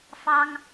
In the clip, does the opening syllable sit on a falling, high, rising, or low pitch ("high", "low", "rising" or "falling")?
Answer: high